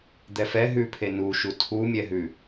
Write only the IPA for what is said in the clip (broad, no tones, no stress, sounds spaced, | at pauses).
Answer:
d̪ ɛ f ɛ ɦ ʉ pʰ e n u ʃ u tʰ u mʲ ɛ ɦ ʉ